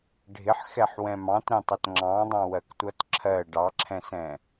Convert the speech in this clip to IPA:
ɖʱ ɪ ħ x ɛ ħ w ɛ̃ m ɑ̃ t ɾ ɛ̃ tˤ ʌ t ŋ͡ǁ ɑ̃ dˤ ɑ̃ w ɜ k tʷ ʌ t ǁʰ ɜ ɖ ɑ ǁʰ ɛ̃ s ɛ̃

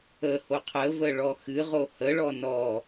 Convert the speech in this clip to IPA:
ə h o qʰ ə v ə ɭ ɔ x ɨ ʁ o h ə ɭ ɔ n ɔ

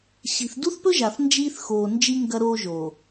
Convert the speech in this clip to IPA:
ɕ i̤˨ θ d u˦ θ p ɵ˦ ʒ a˨ θ n d͡ʒ iː˦ θ x oː˨ n d͡ʒ i˦ ŋ ɡ ɐ˦ ɾ oː˦ ʒ o˨

